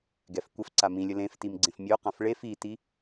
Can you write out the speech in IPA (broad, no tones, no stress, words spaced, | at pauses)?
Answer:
ɡɛfkʷəf ǀamĩlʲə lẽftimɡ͡ǀẽf mʲoqãf ɭef iti